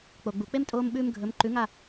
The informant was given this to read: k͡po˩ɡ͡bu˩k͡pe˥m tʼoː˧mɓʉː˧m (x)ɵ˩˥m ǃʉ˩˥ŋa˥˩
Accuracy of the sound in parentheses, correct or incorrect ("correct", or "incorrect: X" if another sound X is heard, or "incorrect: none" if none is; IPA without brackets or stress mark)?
incorrect: ɡʱ